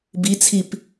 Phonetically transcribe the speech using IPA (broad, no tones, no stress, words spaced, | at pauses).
bit͡sʰip